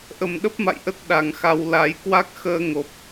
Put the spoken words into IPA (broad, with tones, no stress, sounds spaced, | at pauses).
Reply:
ʔ ə˨˩ m ɗ ə˦˥ p̚ m a̰˧˨ j ʔ ə˦˥ t̚ ɗ a˨˩ ŋ x a˨˦ w l a˨˦ j k w a˦˥ k̚ x əː˧ ŋ o˨˩ p̚